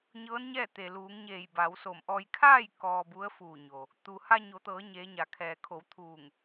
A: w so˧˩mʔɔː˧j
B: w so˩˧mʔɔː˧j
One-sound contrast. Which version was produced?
A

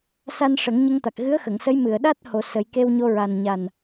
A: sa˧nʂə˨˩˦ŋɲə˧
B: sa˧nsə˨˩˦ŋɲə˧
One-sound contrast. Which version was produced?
A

